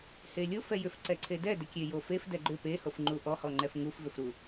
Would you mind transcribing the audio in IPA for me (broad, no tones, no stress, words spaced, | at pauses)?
helʲo fɛjʏf ǀɛǀʰedɛdə kʲejofef dɛɡ͡ǃʏ pehofŋ͡ǃu ʔɔhɔŋ͡ǃɛf ŋufvʏfɾu